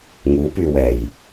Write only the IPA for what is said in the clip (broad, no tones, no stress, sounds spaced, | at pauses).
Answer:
ŋ u p y w ɛ j